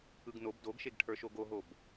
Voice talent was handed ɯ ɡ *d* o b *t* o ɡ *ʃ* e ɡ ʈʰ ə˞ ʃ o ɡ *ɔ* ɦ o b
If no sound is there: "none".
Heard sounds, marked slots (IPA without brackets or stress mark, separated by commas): n, d, ʃ, o